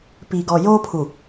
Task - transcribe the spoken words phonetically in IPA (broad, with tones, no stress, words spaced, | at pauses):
pi˨ɡɔ˨joː˦pʰu˨